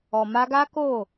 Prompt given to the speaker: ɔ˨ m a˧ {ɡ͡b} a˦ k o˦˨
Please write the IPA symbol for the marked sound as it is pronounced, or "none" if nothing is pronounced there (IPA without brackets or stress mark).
ɡ